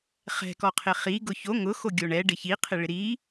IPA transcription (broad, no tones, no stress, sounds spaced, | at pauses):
χ ɛ̤ k ɔ qʰ ɪ χ i ɡ ʊ ç o ŋ ʊ x o ɡʲ o ɳ ɛ ɖ ɪ ç i qʰ ɪ ɭ ɪ ɾ i